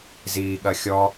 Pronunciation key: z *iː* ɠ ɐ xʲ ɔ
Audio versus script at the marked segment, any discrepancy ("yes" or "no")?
no